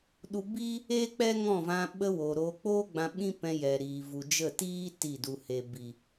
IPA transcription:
ɗ u˧ b iː˦ | e˦ k͡p ɛ˦ ŋ ɔ̃˦˨ v ã˧ ɓ ə˧ w oː˨ ɾ oː˧ k͡p oː˦ ɡ͡b ã˧ ɓ ĩ˦ p ɛ̃˧ j ɛ˨ ɾ iː˨ v u˨ d͡ʒ ə˦˨ t iː˦ t i˦˨ d u˧ h e˧ b i˨

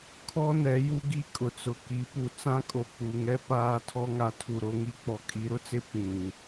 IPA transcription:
kʰ ɔ˦ n ɛ˨˦ j u˦ ɡ i˦˨ kʼ ʊ˨ t͡s ʊ˨ k i˨˦ p u˨ t͡s ã˦ kʼ o˨ k͡p u˨ ŋ ɛ˦ p aː˦ tʰ ɔ˦ ŋ a˨ tʰ u˨ ɾ o˦ ŋ i˦ k͡p ɔ˨ kʼ i˨˦ ɾ ʊ˦ t͡s ɪ˦ p ĩ˨

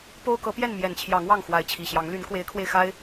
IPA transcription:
p o˦ ʊ̯ k ɤ˨˦ p j ɛ˥˨ n m j ɛ˨˩ n t͡ɕʰ j ɑ˨˦ ŋ w ɑ˥˨ ŋ x w a˨˦ ɪ̯ t͡ɕʰ i˨˩ ɕ j ɑ˨˦ ŋ l y˨˦ n k w e˨˦ ɪ̯ kʰ w e˧ ɪ̯ x a˦ ɪ̯

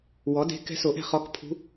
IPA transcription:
w ɔ˩˥ d e̤˧˥ k ɛ̤˧˥ s o˨˩˦ ʔ ɛ̤˥˨ χ ɔ˧˥ k pʰ ṳ˧˥

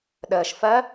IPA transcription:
ɗ əː ʃ f ɜ

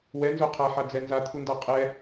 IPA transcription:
w ɛ n z o qʰ a ħ a d͡z ɛ n z a t̪ʰ u n d a qʼ ɛ

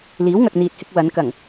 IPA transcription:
l iː˨˥ w ŋ ɐ˨ k̚ n̪ iː˨ t̚ h ɪ˧ k̚ w ɐ˨˧ n k ɐ˨˩ ŋ

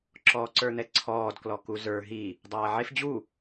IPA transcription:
ǁ ɔː ǀ ə˞ n̪ ɛ ǀʰ ɔː d k l ɔ k u z ə˞ ɦ i | dˤ aː ʕ e f d͡ʑ u

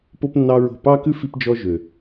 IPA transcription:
p o˦ p nː ɑ˦ ɹ o̤˦˨ p ɑ˦ k ʉ˦ f i˦ p d͡ʒ ɔ˦ ʒ ø˨

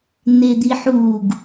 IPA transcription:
n̪ e d̪ i ħ u ɡ

